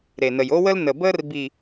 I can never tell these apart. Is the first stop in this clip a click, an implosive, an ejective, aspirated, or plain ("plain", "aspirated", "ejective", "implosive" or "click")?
plain